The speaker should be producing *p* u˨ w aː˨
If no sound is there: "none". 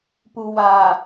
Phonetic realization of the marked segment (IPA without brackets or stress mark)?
p